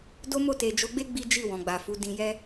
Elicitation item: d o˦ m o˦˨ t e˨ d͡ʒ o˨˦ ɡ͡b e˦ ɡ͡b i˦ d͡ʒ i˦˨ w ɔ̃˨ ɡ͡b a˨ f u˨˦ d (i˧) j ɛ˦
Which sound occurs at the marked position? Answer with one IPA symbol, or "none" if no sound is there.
ĩ˧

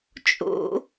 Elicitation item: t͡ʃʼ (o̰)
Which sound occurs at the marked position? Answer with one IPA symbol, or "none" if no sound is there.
o̰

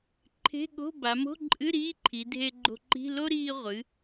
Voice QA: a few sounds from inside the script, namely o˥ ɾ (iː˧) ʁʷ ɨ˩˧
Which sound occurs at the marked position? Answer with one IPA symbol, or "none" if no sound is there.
iː˧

